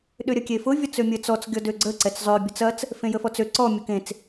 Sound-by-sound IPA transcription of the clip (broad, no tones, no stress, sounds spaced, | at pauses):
ɗ ʏ ɾʲ ɐ kʲ e f ʊ vʲ ɔ t͡s ø mʲ ə t͡s ɔ t͡s ɡʲ ɔ d ø ɡ͡ǀ ə ǀ ɛ t͡s zˤ ø bʲ ʊ t͡s ɐ t͡s | f ẽ j ə f ɔ t͡s ø ǀ ɔ mʲ ʊ k ẽ t͡s